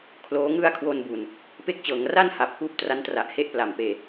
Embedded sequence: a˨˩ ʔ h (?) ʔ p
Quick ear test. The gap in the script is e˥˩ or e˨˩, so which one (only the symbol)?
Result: e˥˩